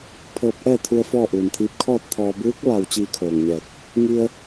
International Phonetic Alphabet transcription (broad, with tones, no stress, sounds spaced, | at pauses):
pʰ ɤː˧ p̚ ʔ ɛː˥˨ t̪ʰ u˧ ə̯ f ɔː˥˨ ʔ uː˩ n t̪ʰ iː˧˥ p̚ kʰ ɔː˥˨ t̚ t̪ʰ ɔː˧ b ɯː˧˥ k̚ ʋ a˧˩ w t͡ɕ iː˥˨ kʰ oː˧˩ ŋ ɲ ɛː˧˩ k̚ | ŋ i˧ ə̯